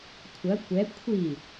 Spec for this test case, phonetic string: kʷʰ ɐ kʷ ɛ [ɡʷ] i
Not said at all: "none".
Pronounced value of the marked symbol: kʷʰ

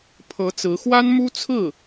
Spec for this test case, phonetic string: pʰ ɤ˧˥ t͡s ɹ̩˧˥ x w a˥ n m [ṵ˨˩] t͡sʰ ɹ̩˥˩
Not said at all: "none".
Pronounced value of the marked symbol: u˥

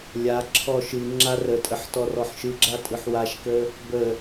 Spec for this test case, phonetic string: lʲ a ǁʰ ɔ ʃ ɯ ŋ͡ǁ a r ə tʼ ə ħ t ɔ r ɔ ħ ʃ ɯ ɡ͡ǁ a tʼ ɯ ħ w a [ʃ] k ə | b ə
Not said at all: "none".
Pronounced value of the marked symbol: ʃ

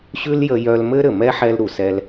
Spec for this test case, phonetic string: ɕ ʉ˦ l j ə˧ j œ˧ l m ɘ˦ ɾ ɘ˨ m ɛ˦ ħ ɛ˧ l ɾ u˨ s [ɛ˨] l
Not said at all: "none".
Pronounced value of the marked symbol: ɛ˧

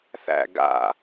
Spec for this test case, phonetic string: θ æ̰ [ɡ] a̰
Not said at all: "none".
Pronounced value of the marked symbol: ɡ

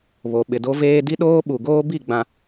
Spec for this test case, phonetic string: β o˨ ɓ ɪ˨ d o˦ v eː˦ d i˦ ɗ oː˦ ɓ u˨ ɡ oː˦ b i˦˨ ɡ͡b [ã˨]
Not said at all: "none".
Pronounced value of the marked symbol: ã˨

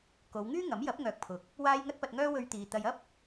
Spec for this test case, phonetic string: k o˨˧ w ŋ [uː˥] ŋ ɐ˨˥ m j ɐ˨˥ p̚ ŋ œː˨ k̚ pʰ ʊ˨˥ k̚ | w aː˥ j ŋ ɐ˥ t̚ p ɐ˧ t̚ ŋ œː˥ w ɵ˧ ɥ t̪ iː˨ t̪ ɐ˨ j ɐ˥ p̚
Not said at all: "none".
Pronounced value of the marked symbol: yː˥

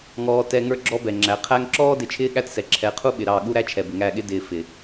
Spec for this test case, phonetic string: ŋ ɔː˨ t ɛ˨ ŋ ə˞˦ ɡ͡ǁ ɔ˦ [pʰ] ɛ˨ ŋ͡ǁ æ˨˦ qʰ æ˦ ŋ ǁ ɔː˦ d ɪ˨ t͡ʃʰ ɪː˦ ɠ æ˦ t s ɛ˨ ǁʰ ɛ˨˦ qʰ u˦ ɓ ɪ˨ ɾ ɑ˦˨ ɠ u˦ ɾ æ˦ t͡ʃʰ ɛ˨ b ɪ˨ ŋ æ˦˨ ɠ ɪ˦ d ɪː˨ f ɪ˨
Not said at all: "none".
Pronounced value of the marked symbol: b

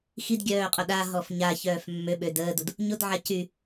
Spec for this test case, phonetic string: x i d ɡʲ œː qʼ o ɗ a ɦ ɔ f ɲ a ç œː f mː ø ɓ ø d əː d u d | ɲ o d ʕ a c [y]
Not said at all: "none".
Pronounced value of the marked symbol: y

